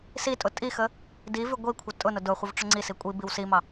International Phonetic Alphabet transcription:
s i tʼ ʊ tʼ i x ə | d i v ʉ ɡʷ i kʷʰ ə tʼ ʊ n ʊ d ʊ χʷ ə v ʈ͡ʂ ʊ ŋ͡ǀ i s i kʷʼ i b i w s i m ɑ

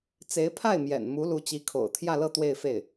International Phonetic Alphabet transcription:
t͡s e˧˥ ɪ̯ pʰ a˥˩ ɪ̯ m j ɛ̰˨˩ n m u˧˥ l u˧˥ t͡ɕ i˧˥ kʰ o̰˨˩ ʊ̯ t̪ʰ j ä˥˧ l ɤ˥˧ t̪ w e˥˧ ɪ̯ f e˥˩ ɪ̯

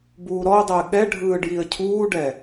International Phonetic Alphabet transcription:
b uː ɾ ɔ ʊ̯ dˤ ɘː ɠ ɛ ɖʱ ɯː ɖ j i ə̯ cʰ uː ɖ ɛ

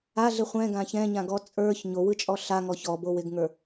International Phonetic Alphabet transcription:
a ɮ ɪ χʷ ɛ̃ ɡ ã ç ɛ̃ ɲ ã ɡ ɔ t͡sʼ ə˞ ç ɲ o w ɯ t͡ʃʼ ɔ ɬ a ŋ ɔ ç ɔ b o w ɪ ɡ ŋ ə˞

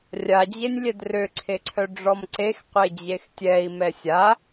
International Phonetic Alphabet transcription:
rʲ a d͡ʑ e nʲ lʲ ɛ d r ø ǀʰ e ǀʰ œ ɖ͡ʐ ɔ m ǀ e x qʷ e d͡ʑ e x tʲ ɛ i̯ m ɛ sʲ a

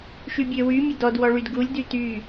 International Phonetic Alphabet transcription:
ʃ y bʲ ø w y mʲ ə d ɔ d w ɔ ɭ y d ɡ u lʲ d y t y

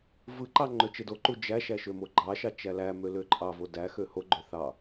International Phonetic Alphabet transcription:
v ɯ ǃ ɑ ŋ͡ǃ ø t͡ʃ e d o ǃ u d͡ʒ æ ʃ æ ʃ ø m o ɡ͡ǃ ɑ ʃ ɑ t͡ʃ æ l æ m ø l ø ǃʼ ɑ v o d æ x ø h o ɡ͡ǃ ø θ ɑ

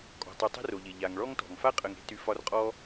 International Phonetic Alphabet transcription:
kʼ ɔ̤˩ tˤ o˨ tˤ e̤˥ r o˩ ʎ e˩ ʎ a˩ ŋ ɭ ɔ˦ ŋ t ɔ̤˩ ŋ f a˥ qʼ ə˨ ŋ e̤˦ t y˨ f ɒ˦ r qʼ ɔ˥

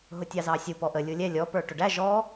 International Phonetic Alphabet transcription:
ɦ ʊ tʲ ɑ z ɑ sʲ u p ɔ ʔ ə lʲ u lʲ ɛ lʲ ɔ p ə˞ ʈ ʊ ɖ æ ʒ ɔ

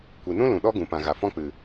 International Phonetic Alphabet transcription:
kʷ i˨ n ũ˦ l ũ˨ ɗ ɔ˦ ɡ ũ˨ p ã˨ ɣ a˨ f ɔ̃˦ k͡p ɨ˨

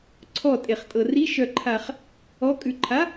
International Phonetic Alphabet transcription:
ǀʰ ɔ tʼ e χ tʼ ɤ r i ʃ œ ǃʰ a χ | ɔ kʼ ʉ ǃʰ a

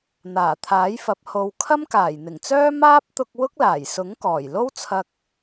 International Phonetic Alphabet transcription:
n̪ aː˨˩ t̪ʰ aː˨˥ j f ɐ˨˥ p̚ h o˧ w kʰ ɐ˥ m k aː˨˩ j n̪ ɪ˨˩ ŋ t͡s œː˥ m aː˥ p̚ t̪ ʊ˧ k̚ w ʊ˥ k̚ l aː˨˩ j s ʊ˨˥ ŋ k ɔː˨˩ j l o˥ w t͡sʰ ɐ˧ k̚

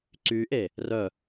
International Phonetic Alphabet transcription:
ǀ y ʔ e | r œ

